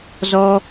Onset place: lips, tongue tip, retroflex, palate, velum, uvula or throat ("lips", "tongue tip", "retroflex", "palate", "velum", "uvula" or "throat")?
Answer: tongue tip